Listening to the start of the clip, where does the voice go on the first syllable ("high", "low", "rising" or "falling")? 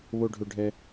low